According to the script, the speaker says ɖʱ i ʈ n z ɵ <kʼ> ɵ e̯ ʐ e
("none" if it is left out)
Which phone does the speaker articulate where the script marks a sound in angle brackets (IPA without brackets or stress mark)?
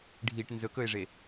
k